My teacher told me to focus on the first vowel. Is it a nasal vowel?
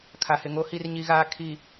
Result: no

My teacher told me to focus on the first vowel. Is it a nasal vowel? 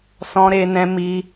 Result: yes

